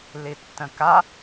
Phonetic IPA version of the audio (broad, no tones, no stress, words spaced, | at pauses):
litːə̃ka